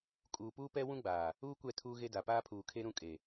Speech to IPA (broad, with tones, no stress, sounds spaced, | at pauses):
kʼ uː˨ p uː˦ p ɛ˦ w ũ˦ ɡ͡b aː˨ | uː˦ kʷ ɛ˦˨ tʰ uː˦ ɣ e˦ d a˨ p aː˦ pʰ uː˨ kʰ e˦ ɾ ũ˦ kʼ e˨